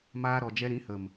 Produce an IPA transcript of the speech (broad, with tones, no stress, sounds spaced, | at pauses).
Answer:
m aː˧ ɾ ɔ˨ d͡ʒ ɛ˧ ɾ ĩ˨˦ h ə˨ m